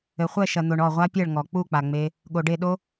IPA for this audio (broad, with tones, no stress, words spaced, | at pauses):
ɘ˨χʷɛ˦˨ ʃɐ˨n̪o˨ɳ ɔ˦˨ʁʷa˦pʲɛ˦˨ɭ ŋɔ˨k͡pu˦˨k͡pa˨ŋ͡me˧ | ɠo˨ɖe˦˨ɗo˦